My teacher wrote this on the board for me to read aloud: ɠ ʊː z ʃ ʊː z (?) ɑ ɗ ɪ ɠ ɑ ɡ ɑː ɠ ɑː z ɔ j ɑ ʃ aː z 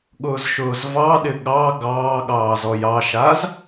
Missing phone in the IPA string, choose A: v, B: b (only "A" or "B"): A